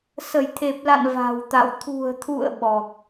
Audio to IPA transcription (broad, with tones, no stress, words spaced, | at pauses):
sə˧˩jt̪ʰe˨˩p̚la̰˧˨n va̤˨˩wt̪a̰˧˨w t̪ʰṳ˨˩ə̯t̪ʰṵ˧˨ə̯ ɓɔ˨˩k̚